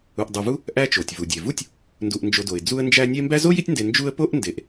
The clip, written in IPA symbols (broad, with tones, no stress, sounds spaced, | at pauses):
u˨ ʔ dˤ u˨ v u˥ | ʔ æ˦ t͡ʃ o˩ tʲ v u˩ dʲ e˩ v u˥ tʲ | n d u˨ ʔ n d͡ʒ o˨ d o˩ ɪ̯ d͡z u˥ ə̯ n d͡ʒ æ˥ nʲ e˥ m b æ˦ z o˥ j i˦ tʲ n d e˨ n d͡ʒ u˦ ə̯ p o˥ ʔ n d e˨ ʔ